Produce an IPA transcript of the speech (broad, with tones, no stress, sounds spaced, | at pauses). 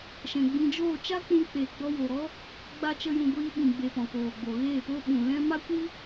ʃ ɛ̃˨ ɡ͡b ĩ˧ d͡ʒ oː˦˨ t͡ʃ a˦ k͡p ũ˧ k͡p e˨ ɡ͡b ɔ˧ w o˨ ɾ ɔ˦ | ɡ͡b a˦ t͡ʃ ə˦ j ũ˧ ɡʷ iː˧ ɓ ĩ˨ ɡ͡b e˨ p ɔ̃˨ k oː˨ ɡ͡b o˨ ɣ eː˦˨ p o˦ ɓ ũ˨ l ɛ̃˦ m a˦ kʷ i˦